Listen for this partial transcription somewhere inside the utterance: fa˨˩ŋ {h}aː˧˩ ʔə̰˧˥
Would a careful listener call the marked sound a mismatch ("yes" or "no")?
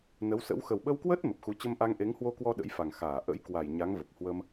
yes